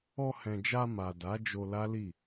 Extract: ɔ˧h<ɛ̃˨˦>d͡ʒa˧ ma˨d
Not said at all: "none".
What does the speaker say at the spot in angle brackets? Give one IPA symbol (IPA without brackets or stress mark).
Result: ɛ̃˨